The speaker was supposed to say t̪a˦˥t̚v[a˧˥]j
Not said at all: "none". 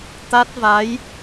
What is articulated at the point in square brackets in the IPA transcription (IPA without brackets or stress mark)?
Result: a˧˥